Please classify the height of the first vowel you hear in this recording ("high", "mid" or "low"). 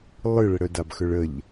high